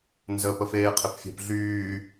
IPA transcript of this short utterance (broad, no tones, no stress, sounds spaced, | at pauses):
n z ə p ə f eː qʰ ɪ p fʲ ɛ̤ p ɮ yː